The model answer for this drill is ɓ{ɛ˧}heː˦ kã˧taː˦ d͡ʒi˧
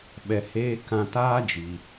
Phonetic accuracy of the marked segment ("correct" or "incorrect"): correct